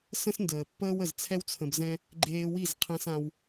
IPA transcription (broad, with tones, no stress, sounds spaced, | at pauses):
s ə̃˦ s n d əː˨ pː əː˦ w ə˨ z t͡sʰ ɛ˦ w t͡sʰ ə̃˧ b z ɛ̃˦ | ɡ͡ǃ eː˧ w i˦˨ z qʰ ɛ̃˧ s ã˧ w